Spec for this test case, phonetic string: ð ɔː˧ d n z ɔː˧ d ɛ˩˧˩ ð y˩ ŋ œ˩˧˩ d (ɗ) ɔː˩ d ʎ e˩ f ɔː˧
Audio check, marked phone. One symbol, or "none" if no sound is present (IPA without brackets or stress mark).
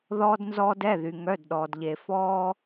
ɗ